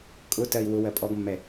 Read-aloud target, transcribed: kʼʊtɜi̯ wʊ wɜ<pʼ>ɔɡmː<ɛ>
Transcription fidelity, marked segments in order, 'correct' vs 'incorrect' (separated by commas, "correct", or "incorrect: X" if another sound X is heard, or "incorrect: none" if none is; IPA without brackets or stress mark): correct, correct